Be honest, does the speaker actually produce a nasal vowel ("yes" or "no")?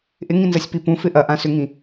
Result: yes